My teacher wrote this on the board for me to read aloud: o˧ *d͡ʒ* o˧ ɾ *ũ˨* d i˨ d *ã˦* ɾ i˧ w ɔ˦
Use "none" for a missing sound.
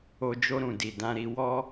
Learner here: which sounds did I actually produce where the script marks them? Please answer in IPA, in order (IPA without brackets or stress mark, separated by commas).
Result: d͡ʒ, ũ˨, ã˧